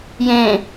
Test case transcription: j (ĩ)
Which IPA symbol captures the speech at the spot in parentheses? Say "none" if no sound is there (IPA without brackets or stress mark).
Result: ẽ